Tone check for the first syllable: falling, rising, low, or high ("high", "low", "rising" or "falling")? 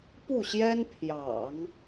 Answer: falling